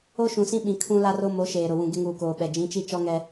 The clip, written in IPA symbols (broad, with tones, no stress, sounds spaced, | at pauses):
o˦ ʃ ũ˨ s ĩ˦ ɓ ĩ˨ kʰ ũ˦ l a˦ r o˦ m o˨˦ ʃ eː˨ ɾ ʊ˨ w ũ˨ ɡ ɪ˦ ŋ uː˨ k oː˨ ɓ ɛ˨ d͡ʒ ĩ˨˦ t͡ʃ i˦ t͡ʃ ɔ˦ ŋ ɛ˦